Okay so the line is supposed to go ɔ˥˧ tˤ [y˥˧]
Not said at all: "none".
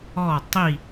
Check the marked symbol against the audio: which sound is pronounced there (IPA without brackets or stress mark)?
i˥˧